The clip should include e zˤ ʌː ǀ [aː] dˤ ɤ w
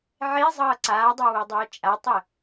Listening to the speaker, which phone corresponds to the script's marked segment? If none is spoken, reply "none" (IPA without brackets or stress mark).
aː